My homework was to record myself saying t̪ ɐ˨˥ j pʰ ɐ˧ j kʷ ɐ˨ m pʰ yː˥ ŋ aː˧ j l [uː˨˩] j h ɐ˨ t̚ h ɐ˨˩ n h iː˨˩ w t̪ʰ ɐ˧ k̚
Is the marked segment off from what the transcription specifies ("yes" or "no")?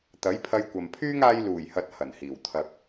no